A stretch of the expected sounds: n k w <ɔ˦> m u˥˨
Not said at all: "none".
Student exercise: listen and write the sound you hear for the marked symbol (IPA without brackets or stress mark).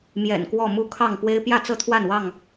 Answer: ɔ˥˨